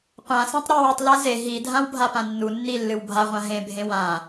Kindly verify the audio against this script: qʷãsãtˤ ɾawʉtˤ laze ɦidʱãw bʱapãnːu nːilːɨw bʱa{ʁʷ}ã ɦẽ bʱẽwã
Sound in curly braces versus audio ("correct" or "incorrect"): correct